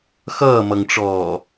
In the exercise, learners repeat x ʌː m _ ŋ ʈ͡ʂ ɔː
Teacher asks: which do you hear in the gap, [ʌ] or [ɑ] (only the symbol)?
ʌ